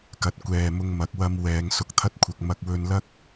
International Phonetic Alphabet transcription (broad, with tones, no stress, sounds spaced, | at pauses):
k ɐ˨˥ t̚ kʷ ɛː˨ m ʊ˧ ŋ m ɐ˨˥ k̚ w ɐ˧ m w ɛː˨˧ ŋ s ʊ˧ k̚ t̪ʰ ɐ˥ t̚ kʷʰ ɐ˧ k̚ m ɐ˧ k̚ w ɵ˧ n l ɐ˥ k̚